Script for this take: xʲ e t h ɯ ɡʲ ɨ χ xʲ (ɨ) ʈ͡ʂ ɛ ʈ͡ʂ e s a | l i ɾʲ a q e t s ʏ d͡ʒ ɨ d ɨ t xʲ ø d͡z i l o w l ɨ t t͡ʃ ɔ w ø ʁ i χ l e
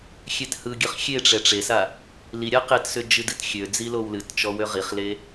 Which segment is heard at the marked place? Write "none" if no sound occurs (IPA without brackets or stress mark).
e